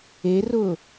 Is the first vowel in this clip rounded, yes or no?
no